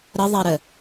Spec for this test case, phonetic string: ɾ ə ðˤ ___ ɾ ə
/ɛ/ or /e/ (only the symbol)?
ɛ